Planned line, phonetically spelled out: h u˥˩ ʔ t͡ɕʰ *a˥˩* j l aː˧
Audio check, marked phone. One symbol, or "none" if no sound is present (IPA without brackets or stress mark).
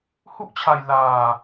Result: a˧